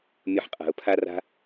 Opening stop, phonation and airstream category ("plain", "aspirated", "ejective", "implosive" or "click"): ejective